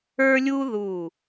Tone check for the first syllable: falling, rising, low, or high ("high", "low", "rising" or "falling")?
high